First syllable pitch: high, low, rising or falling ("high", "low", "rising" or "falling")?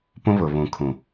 high